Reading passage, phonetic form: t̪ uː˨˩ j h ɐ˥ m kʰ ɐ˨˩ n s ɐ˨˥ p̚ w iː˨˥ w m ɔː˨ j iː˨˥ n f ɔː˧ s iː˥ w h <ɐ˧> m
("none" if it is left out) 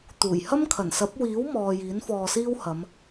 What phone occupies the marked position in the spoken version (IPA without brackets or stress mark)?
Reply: ɐ˨˧